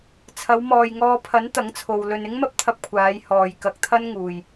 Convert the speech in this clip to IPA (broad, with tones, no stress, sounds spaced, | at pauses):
t͡sʰ ɐ˨˧ w m ɔː˨ j ŋ ɔː˧ pʰ ɐ˨˥ n t̪ ɐ˨˥ ŋ t͡sʰ o˨ w l ɵ˨ n ɪ˥ ŋ m ɐ˥ p̚ t̪ʰ ɐ˧ p̚ kʷʰ aː˨˧ j h ɔː˨ j k ɐ˧ k̚ t̪ʰ ɐ˥ n ŋ uː˨ j